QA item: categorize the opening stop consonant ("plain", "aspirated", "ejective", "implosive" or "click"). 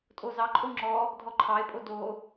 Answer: ejective